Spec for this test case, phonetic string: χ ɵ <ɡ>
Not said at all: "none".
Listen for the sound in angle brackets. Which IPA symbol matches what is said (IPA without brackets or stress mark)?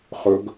ɡ